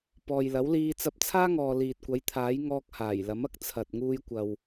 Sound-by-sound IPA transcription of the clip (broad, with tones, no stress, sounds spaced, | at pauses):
p ɔː˨ j l ɐ˨˥ w l iː˧ t͡s ɐ˧ p̚ t͡sʰ aː˥ ŋ ɔː˨ l iː˨ t̚ kʷ ɐ˨˥ j t̪ʰ aː˨˥ j ŋ ɔː˧ k̚ h aː˨˩ j l ɐ˨˥ m ɐ˥ k̚ t͡sʰ ɐ˨ t̚ ŋ uː˧ j kʷ ɐ˨ w